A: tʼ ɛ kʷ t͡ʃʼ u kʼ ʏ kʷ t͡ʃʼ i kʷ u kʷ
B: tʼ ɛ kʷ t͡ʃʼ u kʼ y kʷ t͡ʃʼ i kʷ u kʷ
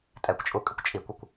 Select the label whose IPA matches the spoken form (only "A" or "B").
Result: A